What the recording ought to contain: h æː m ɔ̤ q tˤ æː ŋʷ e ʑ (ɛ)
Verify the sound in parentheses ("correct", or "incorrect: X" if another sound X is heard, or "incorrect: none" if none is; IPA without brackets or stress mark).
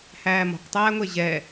correct